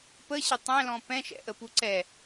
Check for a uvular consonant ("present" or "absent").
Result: absent